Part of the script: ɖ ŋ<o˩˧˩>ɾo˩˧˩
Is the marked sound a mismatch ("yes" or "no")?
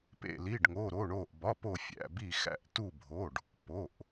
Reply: no